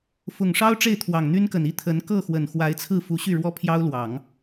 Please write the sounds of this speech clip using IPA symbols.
f ʊ˨˩ ŋ ʂ ɑ˥ ʊ̯ ʈ͡ʂ e˥˩ ɪ̯ t̪ʰ w ɑ˨˩ ŋ n̪ y˥ n k ə˨˩ n i˥ t̪ʰ ə˧˥ n k ɤ˥˩ x w ə˨˩ n x w a˧˥ ɪ̯ t͡sʰ ɹ̩˥˩ f u˧˥ ɕ y˥˩ ɻ w ɔ˥ pʰ j ɑ˥ ʊ̯ l w ɑ˨˩˦ ŋ

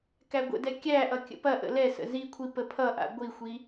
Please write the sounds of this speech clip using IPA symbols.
k æ ɡʷ ə̰ d ɛ kʲ æ ʔ ʌ kʲ ə̰ p ɐ ʔ ə̰ l ɛ s ə̰ z i kʷʰ i p ə pʰ ʌ ʔ a̰ ɡʷ i xʷ i

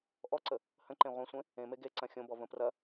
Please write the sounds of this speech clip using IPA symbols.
ʔ ɔ ǀ ə | h ə̃ ǃ ẽ ʁʷ ɐ̃ sʷ ẽ | ẽ m e ɡ e ǀ ɐ̃ xʲ õ b ɔ v ə̃ p r ɐ

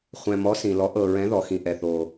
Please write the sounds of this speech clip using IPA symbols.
χʷ ɛ̃˩ m ɔ˩˥ s ĩ˩ l ɔ˩˥ ʔ ɤ˩ ɹ ɛ̃˩˥ ð ɔ˩ x ĩ˩ ʔ ɛ˩ θ o˩

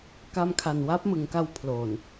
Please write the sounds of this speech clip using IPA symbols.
k a˧ m kʰ a˨˩ n w a˦˥ p̚ m ɯ˩˦ ŋ k a˧ w pʰ l oː˨˩ n

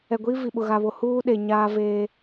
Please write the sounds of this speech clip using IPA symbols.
ɛ˨ ɡʷ iː˦ v i˨ ɓ ʊ˨ ɣ a˨ β o˨ h uː˦ ɗ e˨ ɲ aː˦ v eː˦

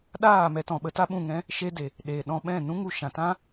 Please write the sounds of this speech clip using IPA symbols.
ɗ aː˦˨ m ɛ˧ t ɔ̃˨ ɓ ə˧ t a˦ ɓ ũ˦˨ ŋ ɛ̃˦ | ʃ e˧ d e˨ | ɗ eː˨ ɗ ɔ̃˧ ɓ ɛ̃˦˨ n ũ˦ ŋ u˧ ʃ ã˨ t ã˦

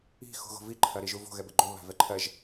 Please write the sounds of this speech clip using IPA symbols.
i̤ x ṳ ɣ o̤ v i ǃʰ ɐ ɾ i ʒ u v o̤ ɣ ɛ b ɘ ɡ͡ǃ o β a̤ v ɛ ǃʰ ɜ ʒ

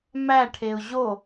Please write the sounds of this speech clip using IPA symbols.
m æ ʈʰ e ʊ̯ ʑ o

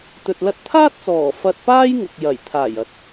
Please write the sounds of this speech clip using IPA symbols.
t̪ ɵ˨ t̚ l ɐ˧ t̚ t̪ʰ aː˥ t̚ t͡s ɔː˨˩ f ɐ˧ t̚ p aː˥ j ŋ ʊ˨ k̚ j ɐ˨˩ j t̪ʰ aː˨˩ j ɐ˨˥ t̚

